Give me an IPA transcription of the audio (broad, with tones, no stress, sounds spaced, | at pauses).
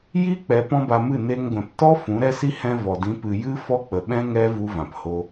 j i˦ k͡p ɛ˧ p ɔ̃˦ b a˧ m ɨ˦˨ n e˧ ŋ ɡʷ ɛ̃˨ p t ɔ˦ f ũ˨˦ ɾ ɛ˦ s i˦ h ɛ̃˧ v ɔ˨ d ĩ˨˦ p ɨ˨ j ɨ˦ f ɔ˦ k͡p ə˨ ɓ ɛ̃˦ ŋ ɛ˦ v u˦ v ã˨ p h o˦